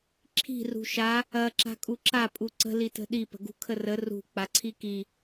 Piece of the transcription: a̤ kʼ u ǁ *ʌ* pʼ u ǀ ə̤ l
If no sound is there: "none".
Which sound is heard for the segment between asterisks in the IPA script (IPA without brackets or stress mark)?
a